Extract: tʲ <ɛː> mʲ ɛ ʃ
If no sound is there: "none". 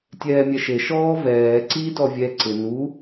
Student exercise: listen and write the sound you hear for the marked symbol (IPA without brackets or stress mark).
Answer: ɛː